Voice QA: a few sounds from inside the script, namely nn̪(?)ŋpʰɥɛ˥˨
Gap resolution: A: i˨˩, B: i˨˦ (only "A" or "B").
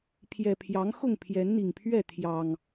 A